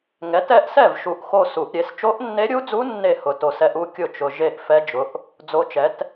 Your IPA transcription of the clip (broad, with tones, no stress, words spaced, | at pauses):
ŋɛ˩˥t ɛ˥˧ʔsɛ˥˩vʃu˨˩ʔ xo˥˧su˨˩˦ʔɾʲe˩˥s t͡ʃo˧˥ʔnːe˧˥ɾʲu˧˥d͡zu˧˥ nːe˥˩ hʊ˨˩to˨˩sɛ˧˥ʔ u˧˥kʲʊ˥˩t͡ʃʊ˨˩ ʒe˥˧ʔ fɛ˧˥d͡ʒʊ˩˥ʔ | d͡zo˧˥t͡ʃɛ˩˥t